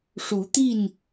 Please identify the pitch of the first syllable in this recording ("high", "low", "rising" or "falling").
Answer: rising